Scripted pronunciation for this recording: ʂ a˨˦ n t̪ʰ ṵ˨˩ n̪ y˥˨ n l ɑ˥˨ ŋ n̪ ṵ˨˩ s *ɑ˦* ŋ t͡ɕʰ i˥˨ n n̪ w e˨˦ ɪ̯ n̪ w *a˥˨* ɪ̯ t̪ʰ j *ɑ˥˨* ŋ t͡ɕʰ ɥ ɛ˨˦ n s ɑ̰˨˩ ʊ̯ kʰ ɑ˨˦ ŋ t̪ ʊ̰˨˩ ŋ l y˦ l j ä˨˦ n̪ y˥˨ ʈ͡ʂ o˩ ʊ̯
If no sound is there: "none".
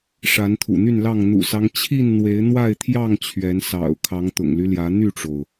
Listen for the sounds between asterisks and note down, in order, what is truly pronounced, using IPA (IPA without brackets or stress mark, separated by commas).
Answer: ɑ˦, a˥˨, ɑ˥˨